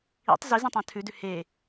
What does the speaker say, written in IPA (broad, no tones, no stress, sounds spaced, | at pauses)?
ḭ tˤ z i z ĩ tˤ ã tʰ ʉ d ʉ h e